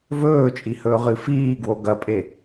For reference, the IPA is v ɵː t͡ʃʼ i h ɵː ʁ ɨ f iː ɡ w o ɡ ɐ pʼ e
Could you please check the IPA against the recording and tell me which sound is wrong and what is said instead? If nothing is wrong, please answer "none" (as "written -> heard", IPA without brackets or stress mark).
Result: none